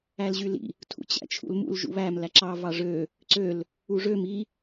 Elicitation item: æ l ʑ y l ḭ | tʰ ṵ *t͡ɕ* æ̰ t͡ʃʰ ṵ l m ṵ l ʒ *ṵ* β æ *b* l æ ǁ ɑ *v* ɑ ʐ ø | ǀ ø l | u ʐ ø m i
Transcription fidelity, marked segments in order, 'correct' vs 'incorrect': correct, correct, incorrect: m, correct

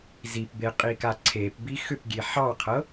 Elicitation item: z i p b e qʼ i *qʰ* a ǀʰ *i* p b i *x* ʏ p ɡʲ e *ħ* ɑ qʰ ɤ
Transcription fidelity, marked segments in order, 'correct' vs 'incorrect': incorrect: k, incorrect: e, correct, correct

